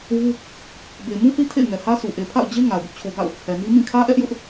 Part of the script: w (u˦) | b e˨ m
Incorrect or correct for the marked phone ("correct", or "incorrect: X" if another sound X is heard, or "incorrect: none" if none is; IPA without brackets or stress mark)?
correct